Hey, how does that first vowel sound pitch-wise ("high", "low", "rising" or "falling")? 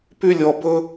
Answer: high